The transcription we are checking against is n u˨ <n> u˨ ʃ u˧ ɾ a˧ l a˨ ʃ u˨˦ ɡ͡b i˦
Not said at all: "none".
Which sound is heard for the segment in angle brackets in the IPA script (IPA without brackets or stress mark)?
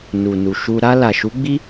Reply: n